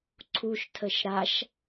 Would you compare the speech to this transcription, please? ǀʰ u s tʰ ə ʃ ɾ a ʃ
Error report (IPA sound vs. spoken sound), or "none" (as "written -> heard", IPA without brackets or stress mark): s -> ʃ